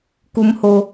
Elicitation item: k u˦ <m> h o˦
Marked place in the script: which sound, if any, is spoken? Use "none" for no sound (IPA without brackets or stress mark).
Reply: m